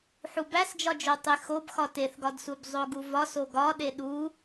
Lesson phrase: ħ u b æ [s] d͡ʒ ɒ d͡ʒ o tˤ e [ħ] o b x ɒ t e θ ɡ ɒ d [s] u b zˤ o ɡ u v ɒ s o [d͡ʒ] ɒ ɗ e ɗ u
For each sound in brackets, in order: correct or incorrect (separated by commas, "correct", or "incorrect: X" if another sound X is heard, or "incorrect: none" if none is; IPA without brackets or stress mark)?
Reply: correct, incorrect: x, correct, incorrect: ɡ